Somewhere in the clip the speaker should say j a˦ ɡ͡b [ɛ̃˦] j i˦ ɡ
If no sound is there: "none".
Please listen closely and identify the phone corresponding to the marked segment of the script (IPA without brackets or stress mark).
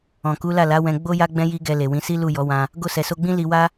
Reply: ɛ̃˦